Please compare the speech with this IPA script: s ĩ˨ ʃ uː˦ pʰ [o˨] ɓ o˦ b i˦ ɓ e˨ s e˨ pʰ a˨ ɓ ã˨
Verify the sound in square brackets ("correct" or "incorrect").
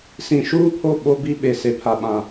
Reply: incorrect